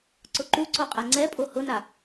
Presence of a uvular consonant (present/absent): present